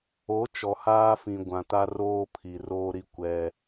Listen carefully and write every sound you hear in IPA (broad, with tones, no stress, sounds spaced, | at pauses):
o˨˦ t͡ʃ ɔ˨ h aː˦ f ĩ˨ ɡʷ ã˨ t a˦ r oː˦ pʰ i˨ r oː˦ ɾ i˦ kʷ ɛ˦